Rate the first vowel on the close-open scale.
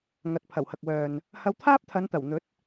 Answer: open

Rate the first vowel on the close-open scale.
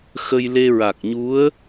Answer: mid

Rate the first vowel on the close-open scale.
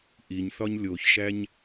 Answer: close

